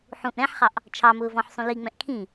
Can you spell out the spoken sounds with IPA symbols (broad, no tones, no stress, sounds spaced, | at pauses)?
ħ ũ ʔ ɾ ɛ̃ ħ χ ɑ ʔ | t͡ʃʰ ɑ m ʊː v ɔ̃ ħ sˤ ũ l i ŋ͡m ɛ̃ ʔ kʰ ĩ